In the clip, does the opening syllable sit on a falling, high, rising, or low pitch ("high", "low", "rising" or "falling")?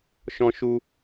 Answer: high